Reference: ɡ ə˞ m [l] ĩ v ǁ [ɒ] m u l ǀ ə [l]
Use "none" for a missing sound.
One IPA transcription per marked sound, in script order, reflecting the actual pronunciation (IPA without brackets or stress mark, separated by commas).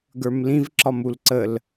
l, ɒ, l